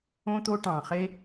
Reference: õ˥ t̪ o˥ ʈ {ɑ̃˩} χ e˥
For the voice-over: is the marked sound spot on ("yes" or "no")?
yes